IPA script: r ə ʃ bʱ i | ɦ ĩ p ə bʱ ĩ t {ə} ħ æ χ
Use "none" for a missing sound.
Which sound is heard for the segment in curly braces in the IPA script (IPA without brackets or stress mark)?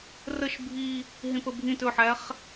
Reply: ɵ